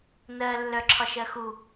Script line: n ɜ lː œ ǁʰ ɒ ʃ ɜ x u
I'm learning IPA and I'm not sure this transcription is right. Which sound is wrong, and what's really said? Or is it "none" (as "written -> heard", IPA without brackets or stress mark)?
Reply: none